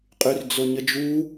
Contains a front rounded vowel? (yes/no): yes